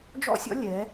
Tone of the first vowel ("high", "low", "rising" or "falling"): high